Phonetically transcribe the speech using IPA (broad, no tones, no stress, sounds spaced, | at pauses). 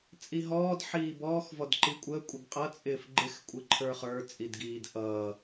t͡sʼ i ɦ ɔː d ħ iː b ɔː x v ɔ d ǃ i kʷʼ əː kʷʼ ɪ ɡ qʼ ʌ t͡sʼ ɪː f ɡ͡ǃ ɪ x kʷʼ ɪ ǃʰ ə˞ χ ə˞ t͡sʼ i d ɡ iː d ʔ ʌː